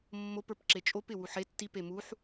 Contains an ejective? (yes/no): yes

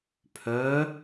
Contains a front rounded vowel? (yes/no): yes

